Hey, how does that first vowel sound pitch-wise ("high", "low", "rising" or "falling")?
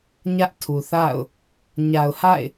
high